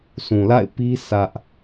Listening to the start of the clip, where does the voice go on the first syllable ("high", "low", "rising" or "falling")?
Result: low